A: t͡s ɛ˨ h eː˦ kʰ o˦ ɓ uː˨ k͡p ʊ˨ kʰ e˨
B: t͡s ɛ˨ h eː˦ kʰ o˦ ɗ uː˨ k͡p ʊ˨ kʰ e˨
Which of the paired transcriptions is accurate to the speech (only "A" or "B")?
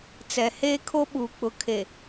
A